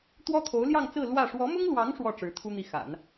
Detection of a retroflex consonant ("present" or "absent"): present